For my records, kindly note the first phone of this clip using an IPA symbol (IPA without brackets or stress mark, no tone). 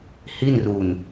h